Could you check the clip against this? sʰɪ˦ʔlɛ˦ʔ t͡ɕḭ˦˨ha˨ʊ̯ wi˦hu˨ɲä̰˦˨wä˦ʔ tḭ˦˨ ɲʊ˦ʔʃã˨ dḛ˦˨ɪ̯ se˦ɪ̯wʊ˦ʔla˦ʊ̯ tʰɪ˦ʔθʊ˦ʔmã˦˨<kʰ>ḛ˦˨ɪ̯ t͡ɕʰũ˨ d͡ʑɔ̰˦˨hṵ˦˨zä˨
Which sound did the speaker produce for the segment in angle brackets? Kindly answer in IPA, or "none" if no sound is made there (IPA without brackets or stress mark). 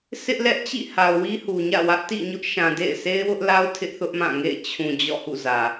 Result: ŋ